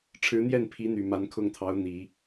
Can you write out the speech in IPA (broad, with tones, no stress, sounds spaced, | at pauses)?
ʈ͡ʂʰ ɻ̩˧˥ n̪ j ɛ˥˩ n pʰ i˧˥ n̪ y˨˩ m a˧˥ n kʰ ʊ˥˩ ŋ t̪ʰ ɑ˧˥ ʊ̯ n̪ i˨˩˦